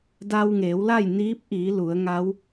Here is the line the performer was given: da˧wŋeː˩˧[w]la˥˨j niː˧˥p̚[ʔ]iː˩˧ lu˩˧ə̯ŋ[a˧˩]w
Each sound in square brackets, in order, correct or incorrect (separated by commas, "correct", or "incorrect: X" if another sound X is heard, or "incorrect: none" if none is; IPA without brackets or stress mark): correct, correct, incorrect: a˧˥